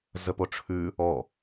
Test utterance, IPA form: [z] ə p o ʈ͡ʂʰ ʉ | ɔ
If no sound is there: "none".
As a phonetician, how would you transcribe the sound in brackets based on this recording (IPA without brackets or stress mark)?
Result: z